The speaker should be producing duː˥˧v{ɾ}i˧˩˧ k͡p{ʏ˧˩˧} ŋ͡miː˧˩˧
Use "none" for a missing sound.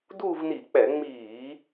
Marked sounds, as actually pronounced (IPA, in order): n, ɛ˧˩˧

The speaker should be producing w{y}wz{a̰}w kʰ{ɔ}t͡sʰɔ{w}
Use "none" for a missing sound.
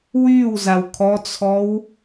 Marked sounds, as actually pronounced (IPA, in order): y, a, ɔ, w

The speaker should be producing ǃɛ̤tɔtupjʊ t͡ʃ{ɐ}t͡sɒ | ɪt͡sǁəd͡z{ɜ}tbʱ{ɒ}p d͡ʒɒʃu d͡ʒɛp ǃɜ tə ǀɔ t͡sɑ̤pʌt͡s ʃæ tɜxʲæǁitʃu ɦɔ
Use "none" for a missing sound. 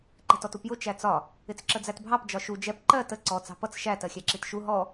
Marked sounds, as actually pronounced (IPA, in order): æ, æ, ɑ

